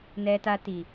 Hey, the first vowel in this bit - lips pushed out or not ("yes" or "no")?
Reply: no